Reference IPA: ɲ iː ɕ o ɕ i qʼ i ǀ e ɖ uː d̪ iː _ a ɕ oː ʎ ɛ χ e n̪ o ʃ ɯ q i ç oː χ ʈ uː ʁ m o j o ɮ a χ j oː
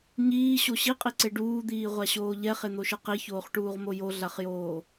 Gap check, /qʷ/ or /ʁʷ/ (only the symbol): ʁʷ